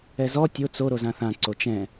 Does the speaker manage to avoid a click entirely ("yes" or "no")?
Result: no